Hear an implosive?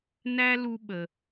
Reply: yes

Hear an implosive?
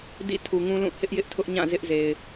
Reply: no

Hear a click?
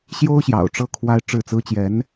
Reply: no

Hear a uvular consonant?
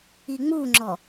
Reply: no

